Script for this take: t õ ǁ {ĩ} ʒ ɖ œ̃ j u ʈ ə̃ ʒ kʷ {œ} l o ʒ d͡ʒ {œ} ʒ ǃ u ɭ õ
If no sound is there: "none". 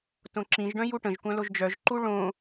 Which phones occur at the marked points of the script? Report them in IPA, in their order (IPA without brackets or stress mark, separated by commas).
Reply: ĩ, œ̃, œ